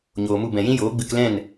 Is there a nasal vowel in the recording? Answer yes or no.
yes